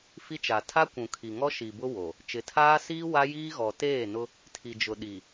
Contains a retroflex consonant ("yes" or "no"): no